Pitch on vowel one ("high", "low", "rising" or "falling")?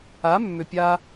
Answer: rising